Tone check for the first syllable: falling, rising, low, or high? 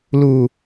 low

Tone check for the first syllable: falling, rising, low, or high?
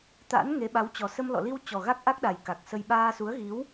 rising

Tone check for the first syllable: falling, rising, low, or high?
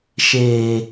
low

